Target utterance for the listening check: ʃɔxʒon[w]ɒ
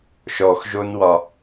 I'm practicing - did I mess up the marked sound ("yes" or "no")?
no